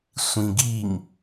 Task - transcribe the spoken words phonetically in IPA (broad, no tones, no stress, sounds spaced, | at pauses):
sʷ ĩ ɡ i ŋ